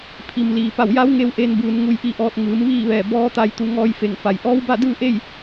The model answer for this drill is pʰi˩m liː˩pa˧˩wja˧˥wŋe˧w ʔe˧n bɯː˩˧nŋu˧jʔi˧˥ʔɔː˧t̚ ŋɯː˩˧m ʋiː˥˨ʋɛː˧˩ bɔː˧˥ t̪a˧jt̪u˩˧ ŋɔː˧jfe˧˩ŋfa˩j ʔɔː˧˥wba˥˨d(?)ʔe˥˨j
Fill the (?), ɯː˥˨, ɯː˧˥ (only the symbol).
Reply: ɯː˥˨